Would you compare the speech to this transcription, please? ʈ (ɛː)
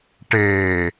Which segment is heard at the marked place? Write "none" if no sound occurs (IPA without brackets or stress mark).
eː